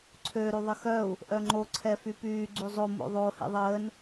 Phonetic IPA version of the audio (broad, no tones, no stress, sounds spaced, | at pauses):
ǀʰ ø ɾ y ðˤ ə x œ u̯ | ʔ œ ŋ͡ǃ o ǀʰ ɛ f y p yː ɡ͡ǀ y zˤ o m o̰ ðˤ o h ḛ ðˤ əː n